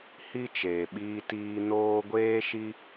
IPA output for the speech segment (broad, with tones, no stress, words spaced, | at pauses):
hi˦ t͡ʃeː˨ɓiː˧ tiː˧noː˦ ɡʷeː˦ʃi˦